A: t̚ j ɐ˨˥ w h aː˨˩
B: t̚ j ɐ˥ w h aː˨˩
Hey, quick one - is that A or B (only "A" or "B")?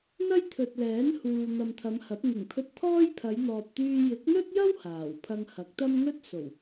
B